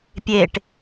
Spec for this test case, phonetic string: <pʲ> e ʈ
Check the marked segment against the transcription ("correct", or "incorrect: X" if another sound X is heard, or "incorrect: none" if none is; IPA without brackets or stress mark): correct